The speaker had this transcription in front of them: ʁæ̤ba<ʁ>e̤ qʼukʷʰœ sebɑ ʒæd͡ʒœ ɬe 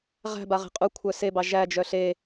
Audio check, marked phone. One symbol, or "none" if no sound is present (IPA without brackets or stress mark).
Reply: ʁ